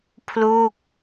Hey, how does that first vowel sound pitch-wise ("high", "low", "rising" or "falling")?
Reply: falling